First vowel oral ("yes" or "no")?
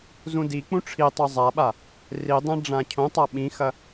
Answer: no